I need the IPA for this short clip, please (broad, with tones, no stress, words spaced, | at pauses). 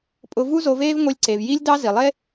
pʼʊ˧vu˥ zo˧veː˥vŋʷi˧lʲǀe˩v ji˥lʲdɑ˥ zi˩lˠe˥